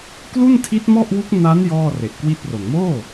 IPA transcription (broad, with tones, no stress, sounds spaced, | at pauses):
k l u˥˩ n tʰ i˦˥ t̚ m ɔ˥˩ ʔ w u˦˥ k̚ n a˦˥ n j ɔː˥˩ r e˨˩ ʔ k w i˥˩ t̚ r o˨˩ n m oː˥˩